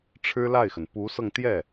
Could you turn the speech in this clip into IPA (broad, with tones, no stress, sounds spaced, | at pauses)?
ʈ͡ʂʰ ɻ̩˥ l a˥˩ ɪ̯ x ə˩ n p u˧˥ s ɤ˧ ŋ t̪ j ɛ˥˩